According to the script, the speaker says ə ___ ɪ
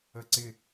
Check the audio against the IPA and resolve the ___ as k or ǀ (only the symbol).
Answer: ǀ